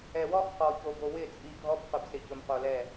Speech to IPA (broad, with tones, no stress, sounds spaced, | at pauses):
ɛ˨ w ɔ˦ χ q ɔ˨ ç o˨ b o˨ w ɪ˦˨ t͡sʼ i˨ ɡʱ ɔ˦ b q ʊ˨ b s ɪ˨ c ʊ˨ m q o˨ l ɛ˦˨